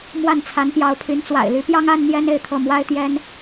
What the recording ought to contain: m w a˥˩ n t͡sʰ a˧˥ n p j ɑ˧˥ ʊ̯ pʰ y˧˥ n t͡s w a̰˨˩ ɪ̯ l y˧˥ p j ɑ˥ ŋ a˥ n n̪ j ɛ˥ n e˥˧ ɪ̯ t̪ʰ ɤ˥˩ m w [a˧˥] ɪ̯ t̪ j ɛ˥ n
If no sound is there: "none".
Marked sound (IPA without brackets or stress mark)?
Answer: a˥